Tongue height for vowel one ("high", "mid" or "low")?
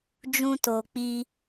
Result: high